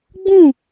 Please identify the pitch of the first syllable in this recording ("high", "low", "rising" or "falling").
falling